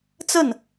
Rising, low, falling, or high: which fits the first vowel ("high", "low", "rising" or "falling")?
falling